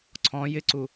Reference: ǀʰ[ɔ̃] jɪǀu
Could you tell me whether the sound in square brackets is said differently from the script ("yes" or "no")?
no